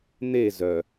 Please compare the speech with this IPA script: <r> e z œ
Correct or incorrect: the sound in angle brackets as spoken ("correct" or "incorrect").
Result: incorrect